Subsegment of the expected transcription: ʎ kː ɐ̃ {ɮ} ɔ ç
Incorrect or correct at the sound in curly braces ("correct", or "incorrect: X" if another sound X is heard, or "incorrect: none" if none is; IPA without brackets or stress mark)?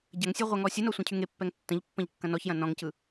incorrect: n